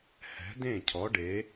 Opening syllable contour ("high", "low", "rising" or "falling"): rising